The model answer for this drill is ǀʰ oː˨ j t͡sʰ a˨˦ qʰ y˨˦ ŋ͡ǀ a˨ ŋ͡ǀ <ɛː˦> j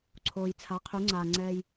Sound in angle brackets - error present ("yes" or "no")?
no